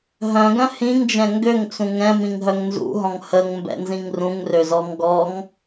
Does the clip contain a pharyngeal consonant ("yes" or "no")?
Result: no